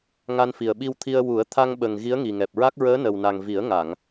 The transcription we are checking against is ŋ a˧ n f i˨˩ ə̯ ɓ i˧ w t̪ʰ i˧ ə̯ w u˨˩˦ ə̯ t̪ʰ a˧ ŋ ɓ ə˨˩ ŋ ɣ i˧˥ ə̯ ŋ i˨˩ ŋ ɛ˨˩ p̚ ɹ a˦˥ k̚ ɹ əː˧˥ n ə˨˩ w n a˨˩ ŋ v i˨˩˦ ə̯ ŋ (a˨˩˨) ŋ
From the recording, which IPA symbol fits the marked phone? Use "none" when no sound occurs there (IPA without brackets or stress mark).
a˨˩˨